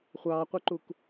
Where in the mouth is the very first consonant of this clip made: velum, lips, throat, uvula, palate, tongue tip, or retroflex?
uvula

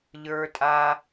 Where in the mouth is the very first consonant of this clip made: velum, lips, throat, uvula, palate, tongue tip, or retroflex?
palate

